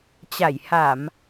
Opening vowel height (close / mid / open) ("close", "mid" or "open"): open